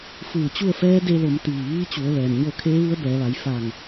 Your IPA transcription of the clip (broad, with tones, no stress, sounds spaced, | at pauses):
f ɯː˧˩ t͡ɕ u˥˨ ə̯ f ɛː˧˥ d e˧ l o˩˧ m t̪ iː˧˩ ʋ iː˧˥ t͡ɕ u˩˧ ə̯ ʋ ɛː˩ m ɲ o˥˨ kʰ eː˧˥ ʋ u˧˥ ə̯ b ɛː˩˧ ʋ a˩˧ j f a˧˩ ŋ